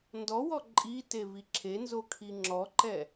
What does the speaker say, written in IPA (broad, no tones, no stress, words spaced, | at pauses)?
ndɔwɔ ǃʼitevi ǁʰenzokʰi ŋ͡ǁɔǃɛ